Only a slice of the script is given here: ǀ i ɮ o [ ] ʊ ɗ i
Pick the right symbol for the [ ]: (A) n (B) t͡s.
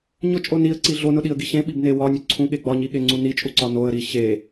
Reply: A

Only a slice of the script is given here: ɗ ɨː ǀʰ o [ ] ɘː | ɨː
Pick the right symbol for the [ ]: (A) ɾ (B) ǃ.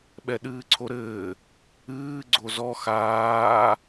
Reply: A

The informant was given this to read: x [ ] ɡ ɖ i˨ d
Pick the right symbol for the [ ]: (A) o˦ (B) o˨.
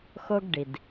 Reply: A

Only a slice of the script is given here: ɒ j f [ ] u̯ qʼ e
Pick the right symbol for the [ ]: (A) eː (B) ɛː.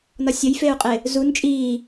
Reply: A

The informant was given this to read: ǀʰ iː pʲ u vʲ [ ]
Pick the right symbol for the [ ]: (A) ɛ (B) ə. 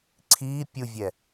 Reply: A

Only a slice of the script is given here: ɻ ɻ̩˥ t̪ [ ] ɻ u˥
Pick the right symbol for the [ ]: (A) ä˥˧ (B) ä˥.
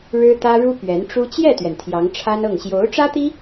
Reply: B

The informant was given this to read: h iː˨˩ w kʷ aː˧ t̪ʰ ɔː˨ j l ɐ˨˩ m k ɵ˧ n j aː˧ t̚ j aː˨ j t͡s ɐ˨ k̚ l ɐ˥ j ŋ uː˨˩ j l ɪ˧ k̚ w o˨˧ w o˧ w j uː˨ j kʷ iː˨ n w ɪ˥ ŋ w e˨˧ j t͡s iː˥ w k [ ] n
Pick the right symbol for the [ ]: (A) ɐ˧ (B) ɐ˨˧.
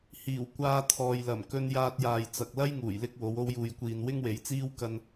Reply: A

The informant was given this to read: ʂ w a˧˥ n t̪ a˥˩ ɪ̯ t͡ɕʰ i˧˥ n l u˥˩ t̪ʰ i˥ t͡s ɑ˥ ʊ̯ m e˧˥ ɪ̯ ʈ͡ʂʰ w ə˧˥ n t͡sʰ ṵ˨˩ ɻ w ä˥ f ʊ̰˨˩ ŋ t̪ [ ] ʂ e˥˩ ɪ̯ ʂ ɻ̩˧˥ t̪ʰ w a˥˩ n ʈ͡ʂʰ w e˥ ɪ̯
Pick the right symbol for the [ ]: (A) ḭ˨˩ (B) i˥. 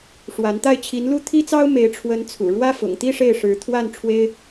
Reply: B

